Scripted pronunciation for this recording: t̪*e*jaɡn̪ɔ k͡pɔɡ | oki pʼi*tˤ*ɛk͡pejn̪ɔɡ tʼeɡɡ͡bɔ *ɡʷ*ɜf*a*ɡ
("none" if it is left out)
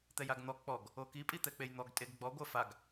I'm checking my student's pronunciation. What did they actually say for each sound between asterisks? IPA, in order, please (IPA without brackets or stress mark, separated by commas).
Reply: ɛ, t̪, ɡʷ, a